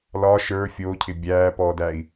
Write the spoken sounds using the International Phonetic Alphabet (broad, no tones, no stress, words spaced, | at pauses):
lɒ ʃə˞ fʲoːcʰɪ bʲæːpɔdæi̯